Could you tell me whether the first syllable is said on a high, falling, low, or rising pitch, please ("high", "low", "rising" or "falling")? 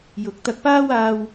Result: rising